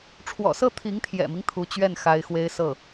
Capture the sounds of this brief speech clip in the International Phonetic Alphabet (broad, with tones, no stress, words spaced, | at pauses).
ʈ͡ʂʰwɔ̰˨˩sɤ˥˩ t̪ʰi˧˥ŋt̪ʰjɛ̰˨˩mi˦ŋ t̪ʰu˧˥t͡ɕɥɛ˥˩n xa˧˥ɪ̯xwe˥ɪ̯ sɤ˥˩